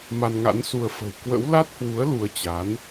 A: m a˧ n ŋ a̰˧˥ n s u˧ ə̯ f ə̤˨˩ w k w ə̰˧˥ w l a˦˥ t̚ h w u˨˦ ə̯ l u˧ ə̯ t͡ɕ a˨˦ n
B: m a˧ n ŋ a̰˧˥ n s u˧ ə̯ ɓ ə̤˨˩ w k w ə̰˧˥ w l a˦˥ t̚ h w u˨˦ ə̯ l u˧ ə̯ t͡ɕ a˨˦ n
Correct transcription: A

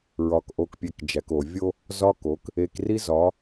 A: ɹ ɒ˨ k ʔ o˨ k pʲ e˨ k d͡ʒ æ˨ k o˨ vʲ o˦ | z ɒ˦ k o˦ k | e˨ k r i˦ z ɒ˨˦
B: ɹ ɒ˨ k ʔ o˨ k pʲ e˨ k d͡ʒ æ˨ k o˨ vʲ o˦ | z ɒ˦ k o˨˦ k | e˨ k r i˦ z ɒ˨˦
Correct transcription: B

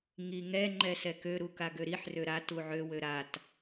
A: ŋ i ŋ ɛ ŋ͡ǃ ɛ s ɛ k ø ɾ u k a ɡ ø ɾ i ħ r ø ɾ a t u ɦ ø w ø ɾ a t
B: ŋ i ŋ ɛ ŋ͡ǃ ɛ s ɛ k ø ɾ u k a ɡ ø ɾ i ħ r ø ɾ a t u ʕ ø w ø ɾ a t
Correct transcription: B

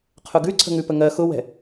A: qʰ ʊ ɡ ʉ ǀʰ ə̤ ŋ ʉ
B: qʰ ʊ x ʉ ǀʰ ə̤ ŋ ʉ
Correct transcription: A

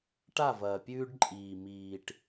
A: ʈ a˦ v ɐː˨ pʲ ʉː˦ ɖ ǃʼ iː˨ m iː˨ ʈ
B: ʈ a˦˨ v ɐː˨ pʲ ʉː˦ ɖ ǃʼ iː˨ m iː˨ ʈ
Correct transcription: B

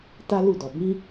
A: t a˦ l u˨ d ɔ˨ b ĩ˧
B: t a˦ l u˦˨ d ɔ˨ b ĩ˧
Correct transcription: B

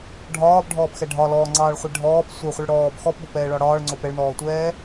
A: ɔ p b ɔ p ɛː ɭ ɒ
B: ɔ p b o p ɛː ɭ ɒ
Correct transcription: B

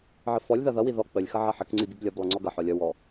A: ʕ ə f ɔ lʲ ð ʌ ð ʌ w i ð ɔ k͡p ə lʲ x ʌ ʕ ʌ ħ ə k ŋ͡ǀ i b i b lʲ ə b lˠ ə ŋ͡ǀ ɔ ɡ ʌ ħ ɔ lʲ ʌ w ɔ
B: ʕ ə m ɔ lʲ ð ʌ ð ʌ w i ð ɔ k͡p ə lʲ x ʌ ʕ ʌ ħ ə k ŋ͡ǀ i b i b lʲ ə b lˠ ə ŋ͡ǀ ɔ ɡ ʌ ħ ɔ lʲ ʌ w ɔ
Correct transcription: A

